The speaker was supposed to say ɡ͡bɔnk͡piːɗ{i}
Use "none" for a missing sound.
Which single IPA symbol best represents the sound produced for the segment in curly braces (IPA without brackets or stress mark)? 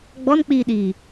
iː